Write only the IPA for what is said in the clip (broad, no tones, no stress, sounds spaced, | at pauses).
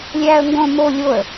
lʲ æː ə̯ ŋ ɡ õ m o lʲ o ə̯